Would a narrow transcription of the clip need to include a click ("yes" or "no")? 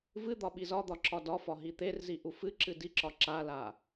yes